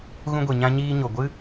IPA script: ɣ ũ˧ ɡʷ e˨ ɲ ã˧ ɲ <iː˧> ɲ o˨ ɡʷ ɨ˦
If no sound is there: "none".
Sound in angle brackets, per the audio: iː˧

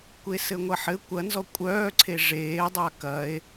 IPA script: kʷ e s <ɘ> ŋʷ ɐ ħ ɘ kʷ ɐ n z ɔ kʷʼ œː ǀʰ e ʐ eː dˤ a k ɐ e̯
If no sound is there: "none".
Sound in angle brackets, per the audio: ɘ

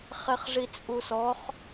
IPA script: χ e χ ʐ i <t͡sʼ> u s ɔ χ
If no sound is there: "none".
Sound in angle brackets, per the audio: t͡sʼ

